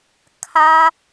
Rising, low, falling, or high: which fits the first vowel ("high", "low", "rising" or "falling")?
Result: high